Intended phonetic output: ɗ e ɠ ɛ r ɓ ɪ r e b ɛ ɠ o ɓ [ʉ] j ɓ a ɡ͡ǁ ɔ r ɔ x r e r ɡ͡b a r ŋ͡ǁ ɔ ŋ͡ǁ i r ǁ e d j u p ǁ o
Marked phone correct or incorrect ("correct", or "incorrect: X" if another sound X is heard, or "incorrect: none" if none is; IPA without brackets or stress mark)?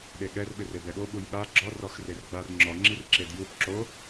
incorrect: u